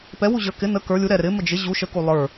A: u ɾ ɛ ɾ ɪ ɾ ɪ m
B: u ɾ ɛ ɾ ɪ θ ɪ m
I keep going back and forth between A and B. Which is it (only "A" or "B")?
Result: A